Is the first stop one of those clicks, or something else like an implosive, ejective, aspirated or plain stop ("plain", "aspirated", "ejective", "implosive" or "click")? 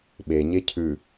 implosive